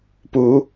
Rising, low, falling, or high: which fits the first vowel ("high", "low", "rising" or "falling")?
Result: rising